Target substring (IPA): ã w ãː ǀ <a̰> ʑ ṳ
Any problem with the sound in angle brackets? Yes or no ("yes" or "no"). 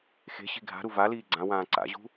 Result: no